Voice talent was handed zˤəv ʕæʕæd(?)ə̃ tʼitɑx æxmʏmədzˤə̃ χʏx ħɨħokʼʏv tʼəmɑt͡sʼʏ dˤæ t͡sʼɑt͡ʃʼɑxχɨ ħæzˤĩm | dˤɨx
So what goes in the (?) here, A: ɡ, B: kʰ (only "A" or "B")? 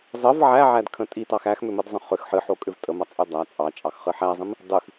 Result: B